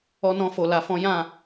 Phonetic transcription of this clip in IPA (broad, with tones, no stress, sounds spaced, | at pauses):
ɔ˦ n ɔ̃˦ f o˧ l a˧ f ɔ̃˦ j ã˦˨